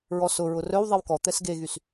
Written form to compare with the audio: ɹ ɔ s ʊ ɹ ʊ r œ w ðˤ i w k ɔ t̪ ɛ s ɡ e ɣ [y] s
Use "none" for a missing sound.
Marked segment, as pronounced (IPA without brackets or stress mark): y